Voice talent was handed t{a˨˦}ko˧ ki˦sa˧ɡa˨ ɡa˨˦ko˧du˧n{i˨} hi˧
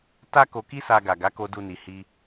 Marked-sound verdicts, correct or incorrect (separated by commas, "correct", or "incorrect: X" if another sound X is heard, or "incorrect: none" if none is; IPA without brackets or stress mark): incorrect: a˦, correct